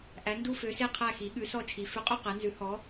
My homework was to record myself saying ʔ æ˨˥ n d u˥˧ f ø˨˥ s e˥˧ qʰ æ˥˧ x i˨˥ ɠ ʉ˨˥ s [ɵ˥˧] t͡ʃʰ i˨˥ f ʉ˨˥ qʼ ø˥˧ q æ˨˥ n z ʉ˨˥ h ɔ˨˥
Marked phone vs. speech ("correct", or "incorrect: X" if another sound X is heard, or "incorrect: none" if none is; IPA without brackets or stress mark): incorrect: ɔ˥˧